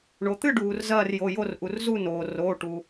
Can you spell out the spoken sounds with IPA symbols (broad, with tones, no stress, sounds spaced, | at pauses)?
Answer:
ɳ o˩ t̪ ɨ˥˧ ɖ uː˩ r z ɐː˥˧ r j o˩˧˩ j o˥˧ r ʔ u˩ r z u˥˧ n oː˩ r oː˩˧˩ ʈ u˩